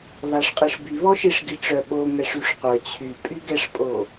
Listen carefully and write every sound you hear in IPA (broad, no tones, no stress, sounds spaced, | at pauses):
β a ʂ qʼ i ʂ b y β ɔ ʃ i ʂ ɡ i ʈ͡ʂ œ ɓ o ŋ ɛ ʂ y ʂ qʷ œ t͡ɕʰ y pʼ y ɡ ɛ ʂ pʼ o